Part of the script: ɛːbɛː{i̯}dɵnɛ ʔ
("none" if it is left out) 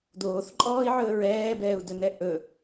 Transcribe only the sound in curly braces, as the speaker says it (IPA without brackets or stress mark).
u̯